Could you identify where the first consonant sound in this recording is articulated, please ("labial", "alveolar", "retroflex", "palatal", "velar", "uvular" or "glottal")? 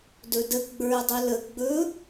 alveolar